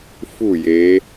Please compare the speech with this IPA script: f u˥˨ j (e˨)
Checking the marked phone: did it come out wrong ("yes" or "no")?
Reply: yes